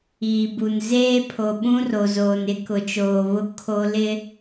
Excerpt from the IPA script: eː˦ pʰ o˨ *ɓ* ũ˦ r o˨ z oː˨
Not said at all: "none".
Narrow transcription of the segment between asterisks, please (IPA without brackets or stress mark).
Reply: ɓ